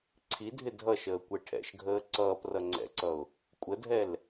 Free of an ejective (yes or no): no